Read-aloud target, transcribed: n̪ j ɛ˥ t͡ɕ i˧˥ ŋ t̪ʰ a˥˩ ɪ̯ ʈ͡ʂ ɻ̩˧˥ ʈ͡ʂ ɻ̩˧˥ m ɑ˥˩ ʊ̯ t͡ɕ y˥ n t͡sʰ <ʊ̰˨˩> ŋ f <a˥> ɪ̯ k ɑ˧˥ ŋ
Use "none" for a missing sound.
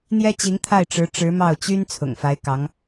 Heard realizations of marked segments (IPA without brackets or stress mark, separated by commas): ʊ̰˨˩, a˧˥